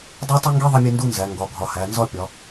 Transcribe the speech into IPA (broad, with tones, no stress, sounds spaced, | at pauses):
dˤ e˥ tˤ i˥ ŋ ɡ i˥ ðˤ i˥ mʲ e˥ n d u˥ n z æ˨˦ ŋ ɡ ɒ˨˦ ɡʱ ɒ˨˦ h æ˨˦ n z ɒ˥ pʲ ɒ˨˦